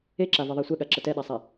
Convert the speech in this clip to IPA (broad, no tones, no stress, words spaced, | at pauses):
eǁavɛðˤa sʷɛɠaǁə tɛɗasˤɛ